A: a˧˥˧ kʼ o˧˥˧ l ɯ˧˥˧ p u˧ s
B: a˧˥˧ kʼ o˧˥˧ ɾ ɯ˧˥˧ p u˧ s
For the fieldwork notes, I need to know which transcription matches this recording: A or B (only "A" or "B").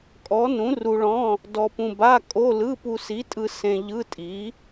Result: A